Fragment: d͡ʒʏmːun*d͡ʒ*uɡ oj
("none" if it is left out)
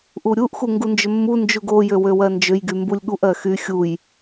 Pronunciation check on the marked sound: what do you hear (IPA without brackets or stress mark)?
d͡ʒ